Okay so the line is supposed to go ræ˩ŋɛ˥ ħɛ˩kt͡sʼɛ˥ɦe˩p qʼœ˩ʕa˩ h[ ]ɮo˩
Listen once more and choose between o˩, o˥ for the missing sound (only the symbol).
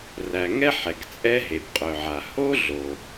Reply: o˥